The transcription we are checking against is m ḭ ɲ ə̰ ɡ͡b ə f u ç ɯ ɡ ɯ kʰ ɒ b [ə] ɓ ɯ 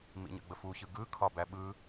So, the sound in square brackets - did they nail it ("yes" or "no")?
no